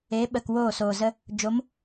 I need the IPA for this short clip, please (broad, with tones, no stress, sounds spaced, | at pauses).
eː˨˦ ɓ ə˨ k w oː˦˨ s oː˨ z ə˧ | d͡ʒ o˨˦ m